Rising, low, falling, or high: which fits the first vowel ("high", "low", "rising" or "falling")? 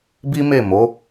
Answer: high